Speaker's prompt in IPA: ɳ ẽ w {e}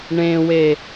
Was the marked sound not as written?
no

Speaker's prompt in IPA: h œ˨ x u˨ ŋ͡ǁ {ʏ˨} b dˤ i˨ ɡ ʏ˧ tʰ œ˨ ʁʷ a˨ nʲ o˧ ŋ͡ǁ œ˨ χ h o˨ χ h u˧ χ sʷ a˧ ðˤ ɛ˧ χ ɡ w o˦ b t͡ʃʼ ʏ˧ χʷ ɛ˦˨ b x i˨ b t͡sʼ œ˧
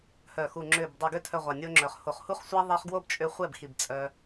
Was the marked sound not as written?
no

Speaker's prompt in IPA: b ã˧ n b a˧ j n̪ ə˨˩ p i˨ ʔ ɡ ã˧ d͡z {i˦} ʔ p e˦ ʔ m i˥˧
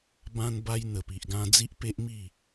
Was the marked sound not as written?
no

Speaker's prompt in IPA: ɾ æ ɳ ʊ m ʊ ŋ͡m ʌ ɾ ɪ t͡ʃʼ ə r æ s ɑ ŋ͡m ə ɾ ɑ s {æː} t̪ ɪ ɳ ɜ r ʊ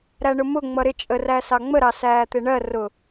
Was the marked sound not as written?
no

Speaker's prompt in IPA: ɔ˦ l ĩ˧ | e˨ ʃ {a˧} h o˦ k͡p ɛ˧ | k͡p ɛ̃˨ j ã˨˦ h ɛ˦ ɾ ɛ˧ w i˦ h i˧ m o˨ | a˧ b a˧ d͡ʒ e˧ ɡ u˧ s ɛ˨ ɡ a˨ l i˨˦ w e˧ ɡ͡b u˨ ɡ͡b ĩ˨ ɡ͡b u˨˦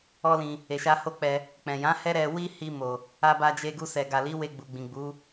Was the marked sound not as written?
no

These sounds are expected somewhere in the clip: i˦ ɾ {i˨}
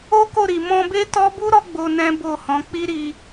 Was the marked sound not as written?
yes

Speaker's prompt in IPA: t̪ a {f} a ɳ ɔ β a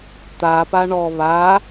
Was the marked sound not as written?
yes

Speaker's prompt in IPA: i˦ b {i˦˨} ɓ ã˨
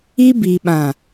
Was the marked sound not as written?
yes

